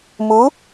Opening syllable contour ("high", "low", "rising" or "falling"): rising